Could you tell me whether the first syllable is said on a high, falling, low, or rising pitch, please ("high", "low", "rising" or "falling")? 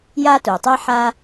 high